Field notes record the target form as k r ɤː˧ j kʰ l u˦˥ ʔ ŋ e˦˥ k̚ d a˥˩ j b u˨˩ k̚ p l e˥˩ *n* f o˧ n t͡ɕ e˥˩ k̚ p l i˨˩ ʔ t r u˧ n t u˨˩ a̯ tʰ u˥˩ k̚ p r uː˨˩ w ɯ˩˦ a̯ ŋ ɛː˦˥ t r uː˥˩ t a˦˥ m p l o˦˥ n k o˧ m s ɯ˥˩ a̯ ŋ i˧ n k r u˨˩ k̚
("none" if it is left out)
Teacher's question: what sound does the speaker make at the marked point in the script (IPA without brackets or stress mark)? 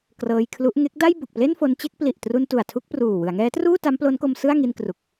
n